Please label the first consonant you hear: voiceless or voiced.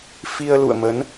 voiceless